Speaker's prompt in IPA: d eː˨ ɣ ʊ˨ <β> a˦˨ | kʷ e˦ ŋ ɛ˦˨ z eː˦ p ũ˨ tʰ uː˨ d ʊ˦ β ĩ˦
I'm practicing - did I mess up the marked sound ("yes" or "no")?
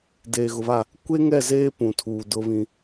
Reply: no